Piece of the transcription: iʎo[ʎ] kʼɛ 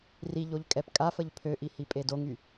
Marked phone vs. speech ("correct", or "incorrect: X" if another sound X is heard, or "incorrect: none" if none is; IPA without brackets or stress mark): correct